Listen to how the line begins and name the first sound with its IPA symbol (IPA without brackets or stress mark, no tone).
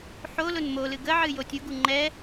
ħ